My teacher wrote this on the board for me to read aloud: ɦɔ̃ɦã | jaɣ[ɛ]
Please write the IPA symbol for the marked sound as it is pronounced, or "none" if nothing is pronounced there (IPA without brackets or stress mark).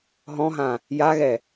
ɛ